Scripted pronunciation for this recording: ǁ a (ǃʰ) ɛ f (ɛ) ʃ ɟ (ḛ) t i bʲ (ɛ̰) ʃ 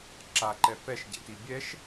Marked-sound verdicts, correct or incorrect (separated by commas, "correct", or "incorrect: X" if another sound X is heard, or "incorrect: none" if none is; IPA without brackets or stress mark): incorrect: ǃ, correct, correct, incorrect: ɛ